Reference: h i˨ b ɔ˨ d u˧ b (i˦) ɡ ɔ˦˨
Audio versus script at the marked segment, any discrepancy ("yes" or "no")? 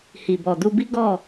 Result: no